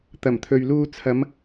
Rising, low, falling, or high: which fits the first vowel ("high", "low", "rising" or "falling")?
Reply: low